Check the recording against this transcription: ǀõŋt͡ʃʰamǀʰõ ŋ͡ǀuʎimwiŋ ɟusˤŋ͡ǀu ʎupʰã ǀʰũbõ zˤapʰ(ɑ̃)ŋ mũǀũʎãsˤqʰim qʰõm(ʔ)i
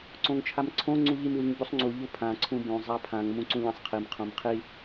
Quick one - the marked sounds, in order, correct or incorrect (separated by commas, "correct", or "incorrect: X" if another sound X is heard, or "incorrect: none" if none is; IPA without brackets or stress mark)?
incorrect: ã, incorrect: qʰ